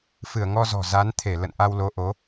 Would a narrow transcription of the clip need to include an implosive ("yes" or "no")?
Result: no